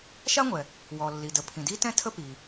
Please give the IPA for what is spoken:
ʃa˥ŋʷɛ˩ | wɔ˩ lːi˩ də˩ pʰĩ˩di˥tɛ̃˥ tʰə˥pi˩

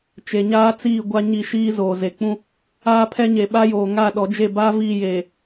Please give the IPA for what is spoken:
t͡ʃe˨ɲaː˦t͡siː˦˨ ɡʷa˦ɲi˦˨ʃiː˦zoː˨ ze˨k͡pũ˦ | aː˦pʰɛ˦ɲeː˨ ɓa˦joː˨ŋa˦˨ɗɔ˨˦ d͡ʒe˦˨ba˦viː˦˨jeː˨

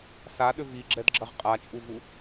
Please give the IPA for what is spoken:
saɗʏ viɡ͡ǁɛdɡ͡ǁɐʁ qʼat͡ʃʼuvu

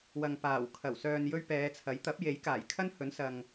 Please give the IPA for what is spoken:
wɐ˨ŋpaː˨˩w kʰɐ˨˩wsœː˨njɵ˧ɥ pɛː˨˧t͡sʰɐ˨˥j t̪ɐ˨˥p̚je˨˥jkaː˨˩j kʰɐ˥nhɵ˨˥n sɐ˨ŋ

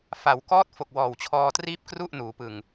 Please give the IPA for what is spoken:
fa˩˦wkɔː˦˥t̚ fo˨˩k̚ wɔː˨˩wt͡ɕʰɔː˧triː˥˩p̚ kru˥˩ʔ nuː˩˦pɯ˨˩ŋ

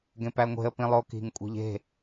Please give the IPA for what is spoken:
ɡẽpæŋʷe̤ə̯ pĩlˠoki̤ŋ kʷʼi̤ʎe̤

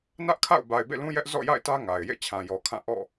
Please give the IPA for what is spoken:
nä˦ʔkʰa̰˦˨ʊ̯ ba˨ɪ̯bḛ˦˨lũ˦jɛ˦ʔ zɔ̰˦˨ja̰˦˨ɪ̯tä˦ ŋa˨ɪ̯ jḛ˦˨ t͡ɕʰã˨jɔ˨ kʰã˦˨ ʔɔ̰˦˨

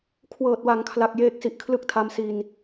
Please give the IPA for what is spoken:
kʰwɤː˨˩t̚wa˩˦ŋkʰla˨˩k̚ jeː˥˩k̚si˦˥ʔ kʰlɯ˥˩k̚tʰa˦˥msi˧n

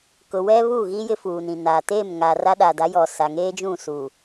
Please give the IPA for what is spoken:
kʊ˨wɛ˦βu˦˨ɣi˦ jɪ˦fuː˨nĩ˨ na˨ te˦˨mŋa˨ ra˦ɗa˨da˨˦ jɔ˨ sa˨ŋeː˦d͡ʒũ˦˨ su˨

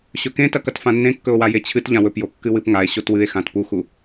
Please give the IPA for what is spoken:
ɕɵkẽtɐkɐt fãnːẽ kːɵo̯wajet͡ɕʰɨt ʎãwɵpjo kːɨwɨpŋae̯ ɕotwɨe̯ xãtpuxu

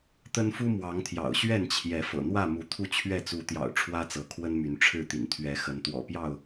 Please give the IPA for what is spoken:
t̪ə˦nfu˦mwɑ˨˦ŋt̪ʰjɑ̰˨˩ʊ̯ ɕɥɛ˥˨nt͡ɕʰjɛ˨˦ fɤ̰˨˩n̪wä˥˨ mu˨˦t̪ʰu˥˨t͡ɕʰɥɛ˥˨ t͡su˨˦t̪jɑ̰˨˩ʊ̯ ʈ͡ʂʰwä˦t͡sɤ˨˦kʰwə˦nmy˨˦n ʈ͡ʂʰɻ̩˥˨t̪ḭ˨˩n t̪ʰɥɛ˨˦xə˨˦n t̪wɔ̰˨˩pjɑ˥˨ʊ̯

